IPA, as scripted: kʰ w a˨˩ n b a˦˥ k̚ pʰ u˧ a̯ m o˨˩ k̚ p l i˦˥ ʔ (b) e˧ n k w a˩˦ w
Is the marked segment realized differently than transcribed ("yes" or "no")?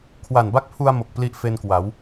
yes